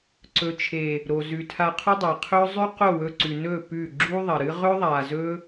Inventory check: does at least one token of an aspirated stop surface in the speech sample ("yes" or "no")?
yes